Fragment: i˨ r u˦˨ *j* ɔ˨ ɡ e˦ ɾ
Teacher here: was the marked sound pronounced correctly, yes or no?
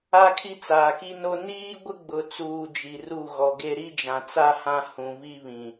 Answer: no